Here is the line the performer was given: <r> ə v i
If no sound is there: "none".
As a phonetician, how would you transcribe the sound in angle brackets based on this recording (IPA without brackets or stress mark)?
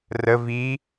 r